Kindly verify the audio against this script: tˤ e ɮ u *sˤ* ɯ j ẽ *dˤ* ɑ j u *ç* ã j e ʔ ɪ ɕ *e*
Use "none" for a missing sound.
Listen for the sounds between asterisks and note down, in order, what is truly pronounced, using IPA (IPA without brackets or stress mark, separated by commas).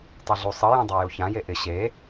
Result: sˤ, dˤ, ç, e